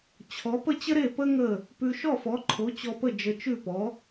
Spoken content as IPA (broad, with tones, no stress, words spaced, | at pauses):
t͡ɕʰɔ˩˥pə˥ t͡ɕə˥ɾe˥˩ pə˥ ŋə˥˩ | pʉ˧ ʃɔ˥˩fɔ˩˥ǃʰo˩˥ t͡ɕɔ˧pə˥˩ d͡ʒə˧t͡ʃʉ˥˩pɔ˩˥